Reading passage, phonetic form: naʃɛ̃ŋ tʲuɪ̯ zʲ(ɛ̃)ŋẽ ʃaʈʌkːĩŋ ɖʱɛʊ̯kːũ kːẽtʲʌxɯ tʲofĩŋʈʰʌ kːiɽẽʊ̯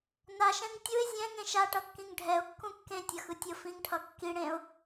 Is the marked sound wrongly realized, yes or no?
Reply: no